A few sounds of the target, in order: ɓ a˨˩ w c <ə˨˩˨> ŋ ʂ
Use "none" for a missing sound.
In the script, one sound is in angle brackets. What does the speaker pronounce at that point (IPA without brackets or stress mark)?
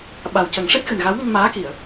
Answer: ə˨˩˦